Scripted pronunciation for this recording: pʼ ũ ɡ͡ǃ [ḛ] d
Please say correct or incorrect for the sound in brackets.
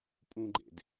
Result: correct